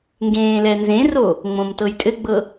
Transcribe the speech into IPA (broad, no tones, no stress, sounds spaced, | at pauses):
ŋ ɡ ẽː l ɛ n z ẽ r o | ŋ͡m õ m t ɤ j tʼ ɘ ɡ͡b ɤ